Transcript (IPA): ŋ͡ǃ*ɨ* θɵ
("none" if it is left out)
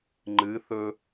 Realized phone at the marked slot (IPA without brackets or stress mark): ɨ